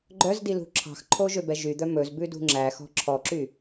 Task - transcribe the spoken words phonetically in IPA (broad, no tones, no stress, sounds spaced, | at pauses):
ɡ͡ǃ œ z d i l ṳ ǁʰ ɑ̤ x ǃʰ o ʒ ø b ɛ ʒ y d̪ œ m ɵ z b ʉ d ṳ ŋ͡ǁ æ x ɔ̤ ǁʰ ɔ ǁ y